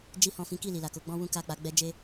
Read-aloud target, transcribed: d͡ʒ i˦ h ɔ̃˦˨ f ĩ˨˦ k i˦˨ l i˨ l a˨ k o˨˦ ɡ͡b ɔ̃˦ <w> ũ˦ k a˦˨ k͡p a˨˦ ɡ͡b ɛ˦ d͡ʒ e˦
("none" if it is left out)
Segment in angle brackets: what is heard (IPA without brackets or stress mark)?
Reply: w